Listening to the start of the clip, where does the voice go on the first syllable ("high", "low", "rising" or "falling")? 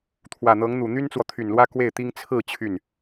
low